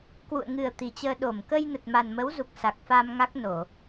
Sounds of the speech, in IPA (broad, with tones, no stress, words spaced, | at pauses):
kwṵ˧˨ə̯ŋɨ˨˩ə̯ t̪i˨˩t͡ɕəː˧ ɗo˧˩m kə˧jnə˨˩t̚ ma˨˩nmə˨˦wzu˨˩k̚ sa˨˩k̚fa˧mŋa˦˥k̚ no˧˩˨